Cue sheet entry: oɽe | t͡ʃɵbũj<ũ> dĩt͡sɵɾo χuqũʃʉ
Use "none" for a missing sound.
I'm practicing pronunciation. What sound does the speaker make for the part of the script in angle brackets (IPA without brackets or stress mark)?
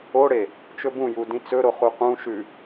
u